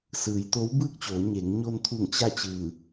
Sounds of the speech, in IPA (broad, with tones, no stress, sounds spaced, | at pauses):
s ɯː˩˧ j t̪ o˧˥ w b ɯː˥˨ k̚ t͡ɕ oː˩˧ ɲ eː˩˧ ŋ ɲ o˧ n t̪ʰ u˧˩ ŋ t͡ɕ a˥˨ t͡ɕ ɯː˧˩